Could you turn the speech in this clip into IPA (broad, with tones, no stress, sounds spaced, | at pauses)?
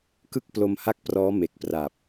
k ɯ˥˩ k̚ p l o˧ m h a˥˩ k̚ p r ɔː˦˥ m e˨˩ k̚ p r a˨˩ p̚